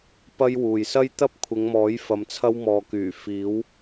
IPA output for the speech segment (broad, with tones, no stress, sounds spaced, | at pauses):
p ɐ˥ j w uː˨ j s ɐ˥ j t̪ ɐ˥ p̚ kʷʰ ɪ˨˧ ŋ m ɔː˨˥ j f ɐ˨˧ m t͡sʰ ɐ˥ w m ɔː˨ k yː˨˩ f iː˨˥ w